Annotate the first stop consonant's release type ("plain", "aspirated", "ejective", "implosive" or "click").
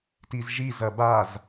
plain